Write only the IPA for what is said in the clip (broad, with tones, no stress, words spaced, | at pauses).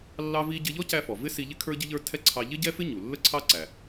lːɑ˥vi˥ ɟɪ˧ʎɔ˥cæ˧fɔ˩ vɪ˥ si˧ʎɪ˥ kʰə˞˥ɟɪ˥ʎə˞˥ tʰɛ˥ǀʰɑ˧ ʎɪ˥ɟɛ˥fɪ˥ ɲu˩lːə˥ǀʰɑ˥ǀæ˩